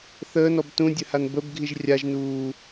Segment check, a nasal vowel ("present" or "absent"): present